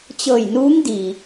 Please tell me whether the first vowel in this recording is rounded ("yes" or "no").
no